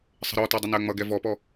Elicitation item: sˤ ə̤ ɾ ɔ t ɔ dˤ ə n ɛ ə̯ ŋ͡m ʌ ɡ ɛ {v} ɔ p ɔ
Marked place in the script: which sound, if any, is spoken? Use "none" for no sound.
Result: v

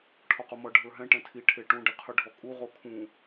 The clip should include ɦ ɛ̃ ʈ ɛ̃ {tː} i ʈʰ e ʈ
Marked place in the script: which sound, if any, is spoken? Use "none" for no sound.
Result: tʰ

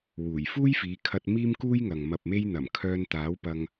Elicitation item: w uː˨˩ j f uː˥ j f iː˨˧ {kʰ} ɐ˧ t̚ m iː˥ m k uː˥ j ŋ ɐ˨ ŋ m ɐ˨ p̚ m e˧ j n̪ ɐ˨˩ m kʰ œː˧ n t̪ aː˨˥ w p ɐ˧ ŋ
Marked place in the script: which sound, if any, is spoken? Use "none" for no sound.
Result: kʰ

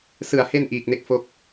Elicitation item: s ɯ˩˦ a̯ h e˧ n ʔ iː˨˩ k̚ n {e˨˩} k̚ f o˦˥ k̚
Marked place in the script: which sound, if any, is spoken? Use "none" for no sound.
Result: e˥˩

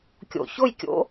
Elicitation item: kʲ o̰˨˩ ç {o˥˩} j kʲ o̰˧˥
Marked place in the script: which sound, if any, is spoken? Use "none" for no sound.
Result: o˥˩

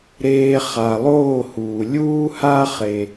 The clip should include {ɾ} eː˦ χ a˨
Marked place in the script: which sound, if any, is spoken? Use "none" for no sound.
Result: ɾ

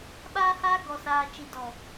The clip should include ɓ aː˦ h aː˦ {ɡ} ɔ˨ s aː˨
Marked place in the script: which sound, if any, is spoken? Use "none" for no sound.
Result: ɡ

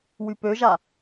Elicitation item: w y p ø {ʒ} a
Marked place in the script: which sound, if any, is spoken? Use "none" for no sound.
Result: ʒ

